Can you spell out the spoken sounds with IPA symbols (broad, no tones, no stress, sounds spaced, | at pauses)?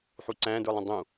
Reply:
ħ u ǀ æ̃ d ə˞ lˠ ə̃ dˤ ũ